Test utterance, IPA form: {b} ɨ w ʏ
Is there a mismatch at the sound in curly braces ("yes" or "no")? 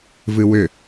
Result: yes